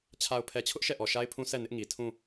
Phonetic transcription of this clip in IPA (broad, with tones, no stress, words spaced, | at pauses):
t͡ɕʰa˨ʊ̯pʰɛ˨t͡ɕʰʊ˦ʔ ʃɛ˦˨ʔɔ˨ʃa˦ɪ̯pʰũ˦ sʰɛ˦˨ nɪ˦ʔŋi˨ tʰũ˦˨